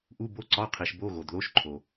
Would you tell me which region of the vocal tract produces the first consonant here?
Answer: throat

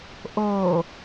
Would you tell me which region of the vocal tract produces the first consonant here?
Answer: throat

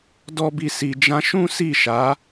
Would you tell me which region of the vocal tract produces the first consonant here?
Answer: tongue tip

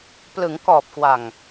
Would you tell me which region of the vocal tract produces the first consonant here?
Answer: lips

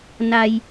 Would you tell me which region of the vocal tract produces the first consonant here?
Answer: tongue tip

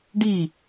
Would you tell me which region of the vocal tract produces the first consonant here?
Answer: retroflex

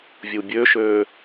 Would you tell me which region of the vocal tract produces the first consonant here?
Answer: lips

